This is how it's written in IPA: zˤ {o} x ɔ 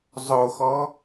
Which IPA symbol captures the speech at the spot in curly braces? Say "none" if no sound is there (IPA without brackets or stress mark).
o